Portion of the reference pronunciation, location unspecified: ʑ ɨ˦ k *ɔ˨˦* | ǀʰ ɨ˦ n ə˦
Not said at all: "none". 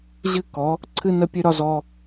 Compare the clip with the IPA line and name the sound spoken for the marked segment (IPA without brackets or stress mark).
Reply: ɔ˨˦